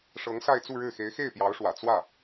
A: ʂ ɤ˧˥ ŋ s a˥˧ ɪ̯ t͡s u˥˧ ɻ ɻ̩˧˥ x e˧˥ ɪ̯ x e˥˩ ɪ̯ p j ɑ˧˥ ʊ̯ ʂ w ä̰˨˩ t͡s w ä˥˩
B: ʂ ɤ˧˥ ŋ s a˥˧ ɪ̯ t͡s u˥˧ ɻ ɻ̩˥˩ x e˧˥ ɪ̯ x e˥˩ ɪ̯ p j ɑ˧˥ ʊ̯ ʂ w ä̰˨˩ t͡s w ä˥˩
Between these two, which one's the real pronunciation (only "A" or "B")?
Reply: B